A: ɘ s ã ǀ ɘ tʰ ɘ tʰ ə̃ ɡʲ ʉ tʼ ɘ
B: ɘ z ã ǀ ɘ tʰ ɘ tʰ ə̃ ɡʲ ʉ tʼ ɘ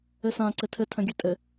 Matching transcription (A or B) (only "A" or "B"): A